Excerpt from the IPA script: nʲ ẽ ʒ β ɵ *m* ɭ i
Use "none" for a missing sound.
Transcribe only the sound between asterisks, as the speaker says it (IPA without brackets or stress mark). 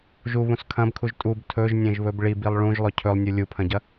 b